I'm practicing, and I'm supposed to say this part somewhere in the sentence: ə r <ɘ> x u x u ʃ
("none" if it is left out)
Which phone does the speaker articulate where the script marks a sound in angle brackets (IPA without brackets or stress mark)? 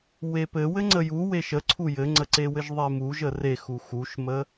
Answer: e